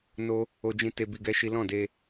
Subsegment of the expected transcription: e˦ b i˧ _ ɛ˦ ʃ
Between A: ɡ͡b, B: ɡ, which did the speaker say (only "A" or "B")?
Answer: B